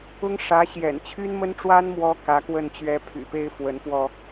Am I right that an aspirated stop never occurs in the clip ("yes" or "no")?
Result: no